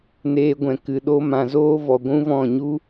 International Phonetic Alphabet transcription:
n eː˧ ɡʷ ɛ̃˨ k ɨ˨ ɗ o˦ m ã˨ z oː˦ v ɔ˨ ɡʷ ũ˦ v ɔ̃˦˨ ɲ u˦

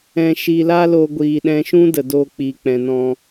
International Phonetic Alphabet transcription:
ɛ̃˧ ʃ i˧ l a˦ l o˧ ɡʷ iː˨ ɗ ɛ̃˧ ʃ ũ˦ d ə˨ d oː˧ k͡p iː˨ k͡p ɛ̃˨ n ɔ̃˧

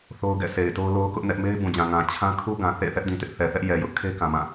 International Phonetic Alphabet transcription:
θ o˦ ʊ̯ ɡ ɛ̰˦˨ sʰ e˨ ɪ̯ t o˦ ʊ̯ l o˦ ʊ̯ k ʊ˦ ʔ n ɛ˦ ʔ m e˦ ɪ̯ b ũ˨ d͡ʑ ã˨ ŋ ã˨ t͡ɕʰ ã˦ kʰ u˦ ɡ ã˨ θ ḛ˦˨ θ ɛ˦ ʔ d ĩ˨ t ɪ˦ ʔ θ ɛ˨ θ ɛ˦ ʔ j ɛ˨ j ʊ˦ ʔ kʰ e˦ k ã˨ m ã˦˨

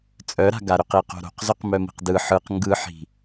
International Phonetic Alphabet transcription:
t͡sʼ œ ɾ a̤ ɡ a ɾ ʏ q i q o̤ ɾ o̤ q z ʏ q m œ m i̤ q d ɯ ħ ɯ q ŋ ɡ ɯ ħ i̤

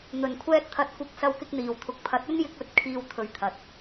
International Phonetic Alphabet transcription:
n̪ ɵ˨˩ n kʷʰ ɛː˧ t̚ t̪ʰ ɐ˨˥ t̚ kʷ ɪ˨˥ k̚ s ɐ˧ w k ɪ˧ k̚ n̪ iː˨˩ w t̪ʰ ʊ˨ k̚ pʰ ɐ˨˥ t̚ ɵ˥ n j ɪ˧ k̚ ɵ˨˥ t̚ kʰ iː˧ w t̪ʰ ɵ˨˥ ɥ t̪ʰ ɐ˨ t̚

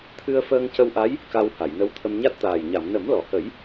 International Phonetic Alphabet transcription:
t̪ʰ ɨ˧ ə̯ f əː˧ ŋ c ə˧ w ʔ a˧˥ j | k a˧ w h a˨˩˨ j n ə˧ w t̪ʰ ə˧ m ɲ a˦˥ t̚ t̪ aː˨˩ j ɲ a˨˩˨ m n ə˨˩˦ m l ɔ˨˩˨ h ə˨˩˦ j

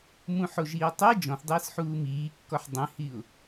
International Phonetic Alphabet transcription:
m ũ ħ o ʒ iː tˤ i d͡ʒ ɔ̃ θ dˤ iː s ħ uː m iː kː ɔ ħ dˤ ĩ h i ʊ̯

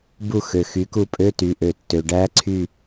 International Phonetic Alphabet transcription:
b u˦˨ x ø˩ x y˩˧ k u˦˨ pʼ ø˧˥˧ t y˩˧ ʔ ø˩ tː ø˩ ɖ æ˧˥ ǀʰ y˦˨

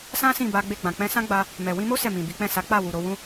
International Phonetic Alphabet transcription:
s ã˦ s ĩ˦˨ b a˧ ɡ͡b e˧ ɡ͡b ã˨ k͡p ɛ̃˧ s ã˦ ɡ͡b a˧ | m ɛ˨ w ĩ˧ m o˦ s ɛ˦˨ m ĩ˨ b i˨˦ k͡p ɛ̃˦˨ s a˨˦ k͡p a˦˨ w u˨ ɾ o˧ w ũ˦

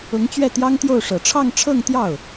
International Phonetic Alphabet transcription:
ʊ˧˥ ŋ t͡ɕ ɥ ɛ˥˩ t̪ j ɑ˥ ŋ t̪ j o˥˩ ʊ̯ ʂ ɤ˨˩ ʈ͡ʂʰ ɑ˥˧ ŋ ʈ͡ʂʰ ɤ˥˧ ŋ t̪ j ɑ˥˩ ʊ̯

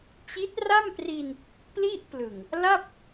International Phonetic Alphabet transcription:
t͡ɕ i˦˥ t̚ r a˥˩ m p r i˧ n | p l i˥˩ ʔ p l ɯ˨˩ ŋ | l a˥˩ p̚

